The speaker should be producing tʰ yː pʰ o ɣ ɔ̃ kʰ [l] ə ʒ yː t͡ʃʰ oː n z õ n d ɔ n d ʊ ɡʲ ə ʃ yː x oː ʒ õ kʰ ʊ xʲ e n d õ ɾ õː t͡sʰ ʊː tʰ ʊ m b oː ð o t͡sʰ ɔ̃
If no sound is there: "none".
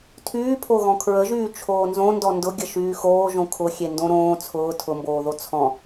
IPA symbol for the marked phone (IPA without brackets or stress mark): ɹ